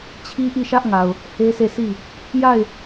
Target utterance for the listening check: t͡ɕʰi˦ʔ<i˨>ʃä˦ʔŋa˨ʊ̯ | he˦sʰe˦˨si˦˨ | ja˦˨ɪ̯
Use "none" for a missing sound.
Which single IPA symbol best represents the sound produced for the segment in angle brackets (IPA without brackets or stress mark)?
i˦˨